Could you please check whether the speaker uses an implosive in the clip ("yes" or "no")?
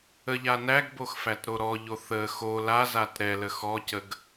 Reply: no